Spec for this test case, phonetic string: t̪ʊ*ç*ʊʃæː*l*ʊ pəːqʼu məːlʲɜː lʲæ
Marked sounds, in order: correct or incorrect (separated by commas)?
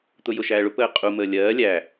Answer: incorrect, incorrect